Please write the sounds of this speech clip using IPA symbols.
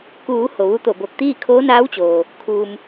k uː˩˧ h o˩ ʋ u˧˥ t̪ o˧˩ b o˧˩ k̚ t̪ iː˥˨ kʰ oː˧˥ n aː˧˥ w t͡ɕ oː˩ | kʰ uː˩ m

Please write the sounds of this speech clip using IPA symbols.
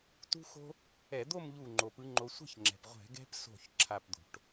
t ṳ˦ x o̤˦ | ɛ˧˩˧ d̪ o˥˨ m ʎ u˧˩ ŋ͡ǃ o˩ p ɯ˨˦ ŋ͡ǃ o˨˦ sʷ ɛ̤˥˨ ç ŋ͡ǁ ɛ̤˩ p ʁʷ ɛ̤˧˩˧ ɡ ɛ̤˦ p s o̤˧˩ ç ǁʰ a˥˨ p d̪ o̤˧˩˧ ʈ

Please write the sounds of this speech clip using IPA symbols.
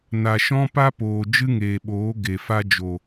n a˨ ʃ ɔ̃˦ p a˦ p oː˨ d͡ʒ ɨ˦ ŋ eː˨ ɓ oː˨˦ ɡ e˨ f a˦ d͡ʒ o˨

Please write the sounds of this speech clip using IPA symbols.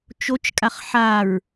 t͡ʃ o t͡ʃ kʼ a χ ħ a ɹ

